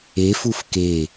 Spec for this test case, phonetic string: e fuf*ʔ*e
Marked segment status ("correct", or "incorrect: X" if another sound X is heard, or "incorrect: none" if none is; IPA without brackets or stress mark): incorrect: k